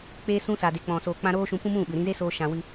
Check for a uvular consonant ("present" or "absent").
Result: absent